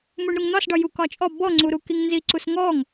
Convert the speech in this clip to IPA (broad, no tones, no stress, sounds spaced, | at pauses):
m u ɳ ɾ u ŋ n̪ ɒ s ɖ ɒ j u k ɒ t͡ʃʼ ɔ b ɔ ŋ͡ǀ u ɾ u k i ŋ n z i ǀ u s ŋ ɔ ŋ